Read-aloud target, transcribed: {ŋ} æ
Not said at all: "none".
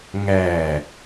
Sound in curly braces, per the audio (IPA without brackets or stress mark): ŋ